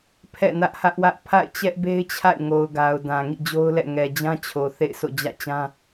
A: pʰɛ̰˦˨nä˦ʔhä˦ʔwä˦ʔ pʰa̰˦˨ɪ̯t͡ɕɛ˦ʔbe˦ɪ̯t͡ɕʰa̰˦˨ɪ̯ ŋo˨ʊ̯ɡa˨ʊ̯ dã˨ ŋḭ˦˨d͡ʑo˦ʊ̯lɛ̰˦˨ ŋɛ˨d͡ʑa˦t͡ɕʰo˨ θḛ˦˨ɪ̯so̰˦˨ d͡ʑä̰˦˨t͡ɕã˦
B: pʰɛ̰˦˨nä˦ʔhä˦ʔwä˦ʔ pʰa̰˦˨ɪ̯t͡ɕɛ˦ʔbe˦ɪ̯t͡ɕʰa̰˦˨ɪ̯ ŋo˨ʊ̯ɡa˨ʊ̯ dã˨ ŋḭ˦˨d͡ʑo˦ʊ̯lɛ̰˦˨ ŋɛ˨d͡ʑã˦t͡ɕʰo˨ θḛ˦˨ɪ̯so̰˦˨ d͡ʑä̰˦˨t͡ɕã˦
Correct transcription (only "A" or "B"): B